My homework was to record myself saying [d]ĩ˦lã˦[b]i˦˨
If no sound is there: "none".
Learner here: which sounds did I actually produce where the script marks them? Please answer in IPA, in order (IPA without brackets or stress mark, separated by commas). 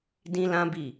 d, b